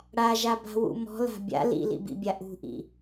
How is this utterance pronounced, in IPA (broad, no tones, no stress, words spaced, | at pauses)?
ɽaʒaba̤wṵ mɔ̤la̤ bʲa̰ lḭlḭbḭbʲa ʔṳʔḭ